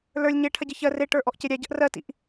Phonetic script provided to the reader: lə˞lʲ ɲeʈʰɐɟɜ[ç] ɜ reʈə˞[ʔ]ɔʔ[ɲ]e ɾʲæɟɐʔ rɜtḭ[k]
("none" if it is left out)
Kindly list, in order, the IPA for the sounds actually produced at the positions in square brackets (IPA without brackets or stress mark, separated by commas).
ç, ʔ, c, ʔ